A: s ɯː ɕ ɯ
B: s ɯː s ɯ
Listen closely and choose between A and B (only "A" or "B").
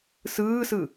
B